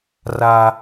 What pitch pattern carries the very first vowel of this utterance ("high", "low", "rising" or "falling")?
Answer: high